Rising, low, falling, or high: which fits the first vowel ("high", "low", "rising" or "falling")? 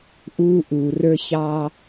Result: high